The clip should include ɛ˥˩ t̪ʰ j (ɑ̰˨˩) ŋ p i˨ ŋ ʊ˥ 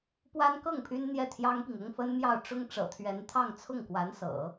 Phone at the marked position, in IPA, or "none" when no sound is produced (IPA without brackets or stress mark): ɑ˥